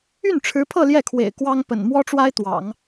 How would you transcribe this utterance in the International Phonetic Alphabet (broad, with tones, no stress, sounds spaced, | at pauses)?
y˥˩ n ʈ͡ʂʰ ɻ̩˧˥ pʰ ɤ˥˧ l j ɛ˥˩ kʰ w ḛ˨˩ ɪ̯ k w ɑ˥ ŋ p ə̰˨˩ n m w ɔ˥ ʈ͡ʂ w a˥ ɪ̯ t̪ w ɑ̰˨˩˦ ŋ